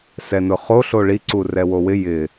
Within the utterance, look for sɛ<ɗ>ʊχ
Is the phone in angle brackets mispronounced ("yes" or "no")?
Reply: yes